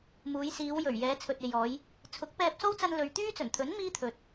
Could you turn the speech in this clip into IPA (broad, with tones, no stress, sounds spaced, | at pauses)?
m uː˨˧ j s iː˨˧ w j ɵ˨˩ ɥ j ɛː˨˧ t͡sʰ ɵ˨ t̚ e˨ j ɔː˨˧ j | t͡sʰ ʊ˨˥ k̚ p ɛː˧ p̚ s o˥ w t͡s ɐ˧ n l ɵ˨ ɥ t̪ yː˥ t͡s ɵ˨˩ n t̪ʰ ɵ˨˥ n m iː˥ t̪ʰ ɵ˨ t̚